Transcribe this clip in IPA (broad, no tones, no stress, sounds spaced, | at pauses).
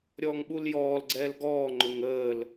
ɾʲ ɔː ŋ ɓ u l j ɔː l ɡ͡ǀ ɛː l ɡ ɔː ŋ͡ǃ ʊ ŋ əː l